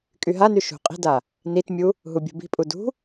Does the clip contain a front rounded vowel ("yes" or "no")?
yes